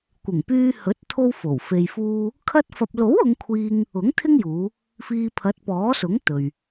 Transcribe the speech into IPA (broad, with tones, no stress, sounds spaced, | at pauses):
kʷ ɪ˨˩ ŋ p yː˧ h ɵ˨˥ t̚ t̪ʰ o˥ w f o˨˩ w f e˧ j f uː˥ | kʰ ɐ˧ t̚ f ɐ˨ p̚ l o˨˥ w ʊ˨˧ ŋ kʷʰ iː˧ ŋ | ʊ˨˥ ŋ t̪ʰ ɪ˥ ŋ j uː˨˧ | f iː˧ pʰ ɐ˨˥ t̚ p ɔː˨˥ s ʊ˨˥ ŋ t̪ ɵ˨ ɥ